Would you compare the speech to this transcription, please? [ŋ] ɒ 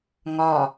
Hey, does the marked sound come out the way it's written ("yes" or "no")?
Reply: yes